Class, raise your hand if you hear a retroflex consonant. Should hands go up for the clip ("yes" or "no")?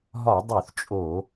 no